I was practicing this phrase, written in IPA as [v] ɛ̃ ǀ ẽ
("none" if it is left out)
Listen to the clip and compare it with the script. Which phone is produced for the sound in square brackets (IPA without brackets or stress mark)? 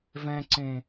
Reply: v